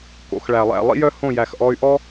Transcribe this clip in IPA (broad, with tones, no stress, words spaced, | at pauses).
ko̰˨xɭæ˨lˠæ̰˦˨ lˠḭ˦jœ˦ hõ˦˨ jæ˨xʔɔ˧y̯ʔɔ˦